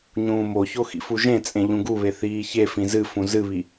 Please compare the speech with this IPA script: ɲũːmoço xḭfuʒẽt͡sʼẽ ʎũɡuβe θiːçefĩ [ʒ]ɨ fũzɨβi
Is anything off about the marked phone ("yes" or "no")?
yes